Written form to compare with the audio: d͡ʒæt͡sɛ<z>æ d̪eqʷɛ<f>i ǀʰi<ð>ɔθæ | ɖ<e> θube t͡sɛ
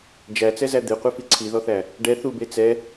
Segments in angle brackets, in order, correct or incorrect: correct, correct, correct, incorrect: ɛ

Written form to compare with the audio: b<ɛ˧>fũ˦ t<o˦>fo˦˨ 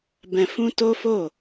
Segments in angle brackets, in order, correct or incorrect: incorrect: ɛ̃˧, correct

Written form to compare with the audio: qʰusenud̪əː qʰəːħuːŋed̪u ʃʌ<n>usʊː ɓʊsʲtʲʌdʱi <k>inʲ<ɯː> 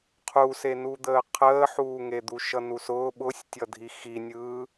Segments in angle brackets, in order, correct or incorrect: correct, incorrect: x, correct

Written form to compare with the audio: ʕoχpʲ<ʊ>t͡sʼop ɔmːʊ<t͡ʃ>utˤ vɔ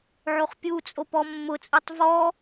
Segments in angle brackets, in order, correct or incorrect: incorrect: u, incorrect: t͡sʼ

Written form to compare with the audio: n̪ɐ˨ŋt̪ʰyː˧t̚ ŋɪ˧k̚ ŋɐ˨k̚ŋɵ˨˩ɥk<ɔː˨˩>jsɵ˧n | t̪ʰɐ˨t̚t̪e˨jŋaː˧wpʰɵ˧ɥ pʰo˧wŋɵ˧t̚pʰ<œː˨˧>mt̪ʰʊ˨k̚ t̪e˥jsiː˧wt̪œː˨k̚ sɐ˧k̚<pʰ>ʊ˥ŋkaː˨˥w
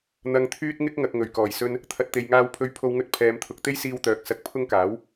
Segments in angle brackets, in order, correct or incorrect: correct, incorrect: ɛː˨˧, correct

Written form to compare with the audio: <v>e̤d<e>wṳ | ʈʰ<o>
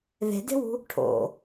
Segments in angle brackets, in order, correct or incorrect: incorrect: ð, incorrect: e̤, incorrect: o̰

